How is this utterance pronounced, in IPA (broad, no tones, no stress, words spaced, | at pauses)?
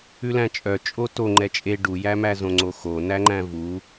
ʉlæ̃t͡ʃʼœ t͡ʃʼoto ŋ͡ǃɛt͡ʃʼe ɖujæmæ zõŋ͡ǀoxo næŋ͡ǃæ̃vu